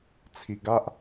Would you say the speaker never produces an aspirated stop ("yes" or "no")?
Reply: no